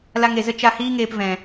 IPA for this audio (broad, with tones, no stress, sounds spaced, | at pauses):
l a˧ ŋ e˨ z ə˦ t͡ʃ a˧ h iː˦ ŋ eː˧ p v ɛ̃˨